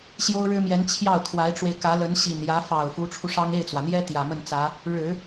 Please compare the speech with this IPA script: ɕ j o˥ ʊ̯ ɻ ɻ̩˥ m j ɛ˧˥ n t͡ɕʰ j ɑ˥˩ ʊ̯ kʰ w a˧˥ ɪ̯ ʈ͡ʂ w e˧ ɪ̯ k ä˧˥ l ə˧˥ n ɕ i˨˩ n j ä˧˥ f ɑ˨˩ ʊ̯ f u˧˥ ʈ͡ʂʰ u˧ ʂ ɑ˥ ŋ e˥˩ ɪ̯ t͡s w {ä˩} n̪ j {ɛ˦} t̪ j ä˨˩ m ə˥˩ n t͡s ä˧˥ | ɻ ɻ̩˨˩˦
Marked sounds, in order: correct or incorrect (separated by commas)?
correct, incorrect